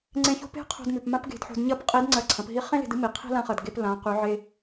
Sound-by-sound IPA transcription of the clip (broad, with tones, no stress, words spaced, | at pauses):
ŋ͡ǀẽ˧˥ço̤˥ pe̤˥qʰo̤˧dmʉ˩p mã˥pɡe̤˧dħo̤˧dɲɐ˥p qʼi˧˥dŋ͡ǀɐ˧ǀʰɐ̃˩˧p ɦi˧˥χẽ˥ le̤˧dɨ˥mi˩ qʰi̤˥lã˧˥χɐ˩d ɡe˧p lã˩˧qʉ˩˧ ʕe˧